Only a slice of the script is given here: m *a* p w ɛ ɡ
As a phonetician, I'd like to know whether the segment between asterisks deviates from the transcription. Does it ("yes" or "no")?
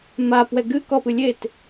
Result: no